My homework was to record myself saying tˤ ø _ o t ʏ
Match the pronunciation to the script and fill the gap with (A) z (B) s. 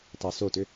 B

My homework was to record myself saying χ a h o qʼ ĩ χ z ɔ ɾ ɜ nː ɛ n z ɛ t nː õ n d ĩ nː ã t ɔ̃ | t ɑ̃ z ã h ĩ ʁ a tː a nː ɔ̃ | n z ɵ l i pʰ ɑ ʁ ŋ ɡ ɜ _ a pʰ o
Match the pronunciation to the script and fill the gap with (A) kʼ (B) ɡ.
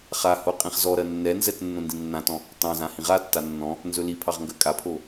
A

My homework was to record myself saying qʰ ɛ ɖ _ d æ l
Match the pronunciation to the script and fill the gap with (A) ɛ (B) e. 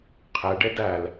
B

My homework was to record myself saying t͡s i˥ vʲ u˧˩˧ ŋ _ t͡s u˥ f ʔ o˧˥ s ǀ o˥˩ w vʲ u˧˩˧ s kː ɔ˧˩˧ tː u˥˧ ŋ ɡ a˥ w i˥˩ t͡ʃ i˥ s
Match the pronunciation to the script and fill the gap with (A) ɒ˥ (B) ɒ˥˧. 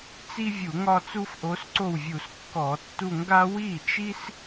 B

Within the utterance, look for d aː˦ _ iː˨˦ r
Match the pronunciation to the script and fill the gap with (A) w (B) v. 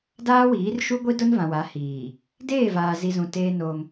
A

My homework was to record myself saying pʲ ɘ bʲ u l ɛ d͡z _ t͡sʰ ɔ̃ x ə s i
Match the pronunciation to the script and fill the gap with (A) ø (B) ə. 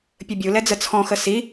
B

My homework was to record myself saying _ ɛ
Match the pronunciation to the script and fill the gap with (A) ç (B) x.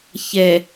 A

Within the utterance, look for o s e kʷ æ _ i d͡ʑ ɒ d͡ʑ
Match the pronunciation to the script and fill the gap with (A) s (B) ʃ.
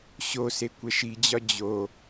B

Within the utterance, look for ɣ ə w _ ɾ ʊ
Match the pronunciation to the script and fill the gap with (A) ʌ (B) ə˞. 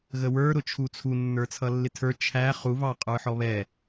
B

